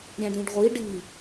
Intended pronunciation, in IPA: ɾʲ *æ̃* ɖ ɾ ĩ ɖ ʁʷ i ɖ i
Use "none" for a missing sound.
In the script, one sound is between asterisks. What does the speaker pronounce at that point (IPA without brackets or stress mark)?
æ̃